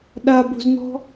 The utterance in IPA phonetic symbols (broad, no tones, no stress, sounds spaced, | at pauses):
ɗ a b ṳ z n̪ ɔ̤